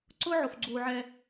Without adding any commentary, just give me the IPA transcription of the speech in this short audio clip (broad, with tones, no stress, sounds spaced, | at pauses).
ǀ ʊ˦ ʕ o˨ f ɡ͡ǀ uː˨ ʕ ɛ˦